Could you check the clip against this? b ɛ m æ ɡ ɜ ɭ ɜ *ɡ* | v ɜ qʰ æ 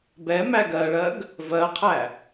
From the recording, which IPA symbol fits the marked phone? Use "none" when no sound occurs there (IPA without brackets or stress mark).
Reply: ɡ